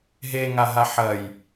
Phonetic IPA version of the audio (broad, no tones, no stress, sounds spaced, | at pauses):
ɦ e ŋ a ɦ a ħ ɐ j